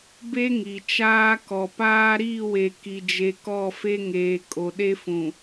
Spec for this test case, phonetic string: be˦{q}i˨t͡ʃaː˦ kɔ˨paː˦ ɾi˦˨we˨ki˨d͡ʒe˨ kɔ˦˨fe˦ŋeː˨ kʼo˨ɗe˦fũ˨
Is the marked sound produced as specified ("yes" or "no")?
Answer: no